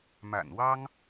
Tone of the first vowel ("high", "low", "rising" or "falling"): low